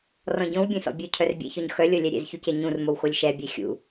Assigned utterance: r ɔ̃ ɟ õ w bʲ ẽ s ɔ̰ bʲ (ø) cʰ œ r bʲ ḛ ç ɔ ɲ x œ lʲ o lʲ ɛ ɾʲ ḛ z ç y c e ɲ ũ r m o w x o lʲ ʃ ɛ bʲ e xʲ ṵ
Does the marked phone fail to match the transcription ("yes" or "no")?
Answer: no